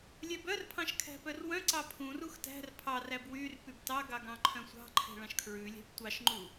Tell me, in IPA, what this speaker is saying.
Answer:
lʲɛbœrpʰɑ̃ʃ kʰæ̤pœrwœ̃ǀɑ pʰũrux tæ̤r pʰɑræb wyr pybtɑɡɑɡ ɑ̃ǃʰœ̃sʷɑ̤ǃʰɛ̤ ɭɑ̃ʃkʰɹʉlʲæ̤p tʷɑʃŋ͡ǃu

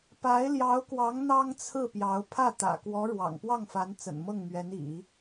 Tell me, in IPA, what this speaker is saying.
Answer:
pa˧˥ɪ̯ljɑ˧˥ʊ̯kwɑ˧˥ŋ n̪ɑ˥ŋt͡sʰɹ̩˥˩pjɑ˧˥ʊ̯ pʰä˥˩t̪ä̰˨˩kwɔ˧˥ ɻwɑ̰˨˩ŋpwɑ˥˩ŋfa˧˥n t͡sə̰˨˩nmɤ˥˩ŋmɥɛ˧˥n ḭ˨˩˦

